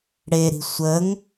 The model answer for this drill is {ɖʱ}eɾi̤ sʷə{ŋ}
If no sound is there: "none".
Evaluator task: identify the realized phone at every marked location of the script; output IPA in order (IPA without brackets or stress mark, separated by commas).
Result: ɽ, ŋ